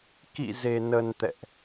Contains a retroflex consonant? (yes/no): no